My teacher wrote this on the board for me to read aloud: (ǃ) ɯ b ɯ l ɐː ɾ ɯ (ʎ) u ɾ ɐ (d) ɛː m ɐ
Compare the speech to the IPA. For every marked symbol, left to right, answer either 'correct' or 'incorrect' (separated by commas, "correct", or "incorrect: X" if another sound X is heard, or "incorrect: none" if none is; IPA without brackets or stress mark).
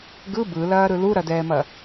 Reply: incorrect: ɡ, incorrect: l, correct